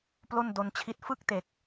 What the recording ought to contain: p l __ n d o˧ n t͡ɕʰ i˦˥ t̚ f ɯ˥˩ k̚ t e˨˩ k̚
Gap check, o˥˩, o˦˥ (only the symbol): o˥˩